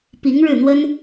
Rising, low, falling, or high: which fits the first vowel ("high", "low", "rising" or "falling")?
rising